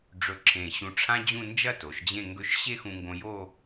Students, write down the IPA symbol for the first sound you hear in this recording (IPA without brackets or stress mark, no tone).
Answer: ɖ͡ʐ